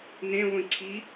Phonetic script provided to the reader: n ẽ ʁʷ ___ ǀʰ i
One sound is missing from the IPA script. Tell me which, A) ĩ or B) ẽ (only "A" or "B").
A